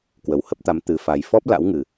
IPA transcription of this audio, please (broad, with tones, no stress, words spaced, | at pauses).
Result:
kwə˨˩whə˦˥p̚t̪a˨˦m t̪ɨ˨˩fa˨˩j fɔ˦˥p̚la̰˧˥wŋɨ˨˩